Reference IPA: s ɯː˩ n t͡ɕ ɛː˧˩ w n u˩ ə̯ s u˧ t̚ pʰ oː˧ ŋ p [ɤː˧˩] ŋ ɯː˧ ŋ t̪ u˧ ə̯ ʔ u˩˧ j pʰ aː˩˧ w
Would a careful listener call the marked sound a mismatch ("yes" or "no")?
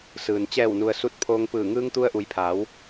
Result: yes